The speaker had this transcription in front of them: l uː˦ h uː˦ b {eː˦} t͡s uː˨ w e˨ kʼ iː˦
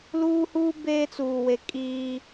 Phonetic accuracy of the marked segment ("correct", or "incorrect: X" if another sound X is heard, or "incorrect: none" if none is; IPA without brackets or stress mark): correct